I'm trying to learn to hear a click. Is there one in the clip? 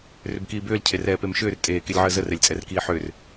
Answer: no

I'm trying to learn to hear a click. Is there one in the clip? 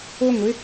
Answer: no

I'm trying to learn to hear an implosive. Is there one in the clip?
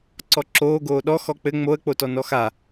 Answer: yes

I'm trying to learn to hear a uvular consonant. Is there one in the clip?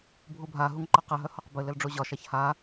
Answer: yes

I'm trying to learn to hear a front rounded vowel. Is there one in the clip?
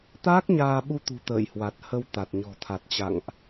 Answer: no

